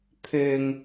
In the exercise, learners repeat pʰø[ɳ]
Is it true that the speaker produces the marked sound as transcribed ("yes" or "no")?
no